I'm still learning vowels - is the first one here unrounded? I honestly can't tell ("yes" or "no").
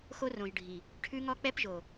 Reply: no